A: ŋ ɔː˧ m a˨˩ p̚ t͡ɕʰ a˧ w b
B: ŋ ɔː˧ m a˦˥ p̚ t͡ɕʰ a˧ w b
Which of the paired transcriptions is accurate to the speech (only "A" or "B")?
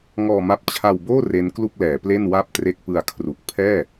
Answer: B